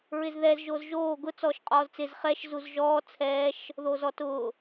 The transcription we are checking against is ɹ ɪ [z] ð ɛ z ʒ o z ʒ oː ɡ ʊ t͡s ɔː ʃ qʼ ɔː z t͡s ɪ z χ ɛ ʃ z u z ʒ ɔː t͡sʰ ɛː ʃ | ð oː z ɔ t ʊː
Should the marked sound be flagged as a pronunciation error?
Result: no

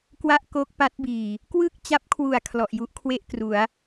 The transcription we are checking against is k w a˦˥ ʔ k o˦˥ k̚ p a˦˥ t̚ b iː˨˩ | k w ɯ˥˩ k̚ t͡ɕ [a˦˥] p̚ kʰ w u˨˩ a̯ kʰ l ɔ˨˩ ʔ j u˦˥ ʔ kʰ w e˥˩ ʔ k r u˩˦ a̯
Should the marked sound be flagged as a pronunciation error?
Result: no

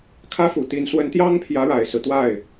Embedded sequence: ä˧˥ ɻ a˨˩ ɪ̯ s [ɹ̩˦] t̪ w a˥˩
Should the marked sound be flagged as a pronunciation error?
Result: no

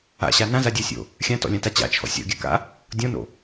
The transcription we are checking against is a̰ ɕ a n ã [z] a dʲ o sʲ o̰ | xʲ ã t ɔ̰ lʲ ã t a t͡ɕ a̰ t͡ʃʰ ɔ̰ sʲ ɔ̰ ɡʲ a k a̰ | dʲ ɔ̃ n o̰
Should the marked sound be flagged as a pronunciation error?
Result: no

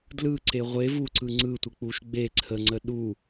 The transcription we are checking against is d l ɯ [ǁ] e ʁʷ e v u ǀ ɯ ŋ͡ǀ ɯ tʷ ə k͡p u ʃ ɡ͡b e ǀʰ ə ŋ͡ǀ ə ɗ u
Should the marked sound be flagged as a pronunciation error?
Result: yes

